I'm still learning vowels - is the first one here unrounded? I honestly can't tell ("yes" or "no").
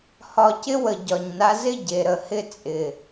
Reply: no